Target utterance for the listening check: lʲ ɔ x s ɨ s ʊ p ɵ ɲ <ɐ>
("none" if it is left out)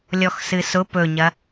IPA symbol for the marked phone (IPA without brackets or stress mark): ɐ